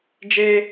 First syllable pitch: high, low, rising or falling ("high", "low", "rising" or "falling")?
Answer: high